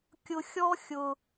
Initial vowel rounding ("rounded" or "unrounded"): rounded